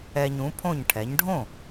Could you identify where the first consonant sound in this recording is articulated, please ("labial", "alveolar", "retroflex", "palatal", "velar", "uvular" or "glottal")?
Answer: palatal